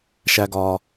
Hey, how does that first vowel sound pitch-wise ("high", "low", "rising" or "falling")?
low